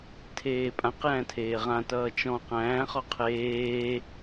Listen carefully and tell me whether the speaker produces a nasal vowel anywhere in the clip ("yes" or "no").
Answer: yes